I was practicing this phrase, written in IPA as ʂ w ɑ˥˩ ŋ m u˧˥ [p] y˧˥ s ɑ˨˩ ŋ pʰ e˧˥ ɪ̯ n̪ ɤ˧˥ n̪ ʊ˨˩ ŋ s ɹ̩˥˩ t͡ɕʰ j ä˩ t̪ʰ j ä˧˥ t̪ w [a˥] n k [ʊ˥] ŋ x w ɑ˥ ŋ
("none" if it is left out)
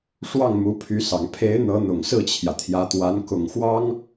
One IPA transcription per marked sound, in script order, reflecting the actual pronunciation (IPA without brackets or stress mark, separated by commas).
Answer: pʰ, a˧˥, ʊ˨˩